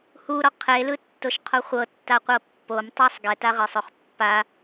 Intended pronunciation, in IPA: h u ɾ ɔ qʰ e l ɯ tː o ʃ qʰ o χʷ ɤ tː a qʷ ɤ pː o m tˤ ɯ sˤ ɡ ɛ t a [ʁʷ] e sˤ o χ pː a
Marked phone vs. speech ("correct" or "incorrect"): incorrect